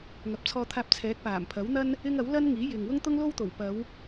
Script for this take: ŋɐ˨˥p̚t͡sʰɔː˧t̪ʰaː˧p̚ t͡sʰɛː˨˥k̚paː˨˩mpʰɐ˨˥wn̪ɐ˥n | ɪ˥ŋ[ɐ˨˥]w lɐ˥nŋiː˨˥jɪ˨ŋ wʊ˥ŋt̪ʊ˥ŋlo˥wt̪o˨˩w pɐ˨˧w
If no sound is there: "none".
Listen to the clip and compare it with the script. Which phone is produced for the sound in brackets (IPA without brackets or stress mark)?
ɐ˨˥